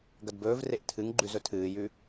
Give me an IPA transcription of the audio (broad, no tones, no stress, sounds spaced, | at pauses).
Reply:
ɡ ɐ d b ɵː v r e ʔ tʰ ɨ ŋ ɡ͡ǃ ʉ z ɵ tʰ ɨː j ʉ